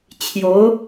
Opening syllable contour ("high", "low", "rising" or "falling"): rising